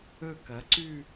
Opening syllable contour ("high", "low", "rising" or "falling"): falling